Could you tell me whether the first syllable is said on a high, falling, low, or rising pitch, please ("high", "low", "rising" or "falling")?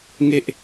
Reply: high